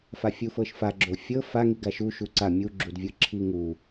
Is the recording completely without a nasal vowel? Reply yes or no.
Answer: yes